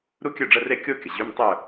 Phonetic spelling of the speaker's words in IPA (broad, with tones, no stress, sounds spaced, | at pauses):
ɾ u˥ kʲ œ˥˨ ɖ͡ʐ ə˧˥˧ r e˥˨ kʲ o˥ kʲ ə˩ ʑ y˧˥˧ m tˤ œ˥˨